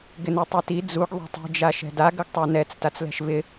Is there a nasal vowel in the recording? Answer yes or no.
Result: no